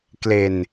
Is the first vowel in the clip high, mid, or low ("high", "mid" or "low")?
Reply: mid